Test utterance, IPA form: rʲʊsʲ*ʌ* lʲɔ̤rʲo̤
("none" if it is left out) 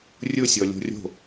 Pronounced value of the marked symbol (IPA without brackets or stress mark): ɔ